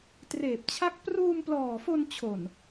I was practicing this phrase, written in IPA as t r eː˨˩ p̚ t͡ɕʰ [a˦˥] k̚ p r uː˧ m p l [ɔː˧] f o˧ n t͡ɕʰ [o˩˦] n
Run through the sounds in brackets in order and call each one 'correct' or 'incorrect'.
correct, incorrect, incorrect

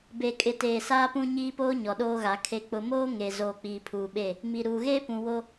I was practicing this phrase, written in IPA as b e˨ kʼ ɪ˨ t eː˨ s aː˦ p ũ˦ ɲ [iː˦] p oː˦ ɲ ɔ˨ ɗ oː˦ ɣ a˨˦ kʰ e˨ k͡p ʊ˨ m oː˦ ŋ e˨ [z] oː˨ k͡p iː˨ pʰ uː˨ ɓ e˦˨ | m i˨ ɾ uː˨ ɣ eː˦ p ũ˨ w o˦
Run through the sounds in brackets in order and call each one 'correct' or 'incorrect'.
correct, correct

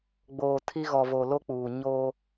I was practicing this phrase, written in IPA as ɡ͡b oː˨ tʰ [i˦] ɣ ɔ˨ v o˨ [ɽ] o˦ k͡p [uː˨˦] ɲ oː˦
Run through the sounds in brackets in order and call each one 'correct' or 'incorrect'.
correct, incorrect, incorrect

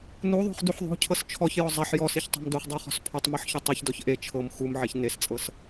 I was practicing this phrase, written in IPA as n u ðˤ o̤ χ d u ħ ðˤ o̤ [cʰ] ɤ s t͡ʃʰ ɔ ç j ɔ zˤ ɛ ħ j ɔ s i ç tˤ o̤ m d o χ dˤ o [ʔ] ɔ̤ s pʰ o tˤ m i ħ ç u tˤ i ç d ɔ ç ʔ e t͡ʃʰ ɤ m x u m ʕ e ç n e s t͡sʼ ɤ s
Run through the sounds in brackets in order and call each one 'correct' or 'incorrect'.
correct, incorrect

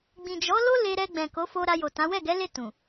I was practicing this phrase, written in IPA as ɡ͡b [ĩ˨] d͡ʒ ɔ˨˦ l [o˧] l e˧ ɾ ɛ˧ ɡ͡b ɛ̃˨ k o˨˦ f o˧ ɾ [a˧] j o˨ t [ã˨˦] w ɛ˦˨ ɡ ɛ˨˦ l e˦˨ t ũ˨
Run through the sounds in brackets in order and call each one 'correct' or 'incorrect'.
correct, incorrect, correct, correct

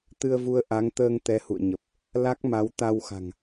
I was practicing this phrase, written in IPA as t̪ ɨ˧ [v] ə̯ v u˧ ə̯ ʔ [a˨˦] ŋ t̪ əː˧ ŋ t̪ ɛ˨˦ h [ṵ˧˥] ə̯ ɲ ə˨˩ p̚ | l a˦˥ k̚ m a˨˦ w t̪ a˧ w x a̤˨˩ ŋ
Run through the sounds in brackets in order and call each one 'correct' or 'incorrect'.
incorrect, correct, incorrect

